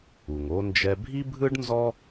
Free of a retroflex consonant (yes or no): no